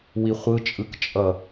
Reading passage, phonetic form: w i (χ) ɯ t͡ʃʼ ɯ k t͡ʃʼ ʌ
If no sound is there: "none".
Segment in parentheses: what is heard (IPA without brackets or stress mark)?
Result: χʷ